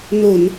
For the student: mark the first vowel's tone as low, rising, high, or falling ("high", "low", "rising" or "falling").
low